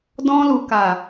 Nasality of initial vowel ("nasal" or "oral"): nasal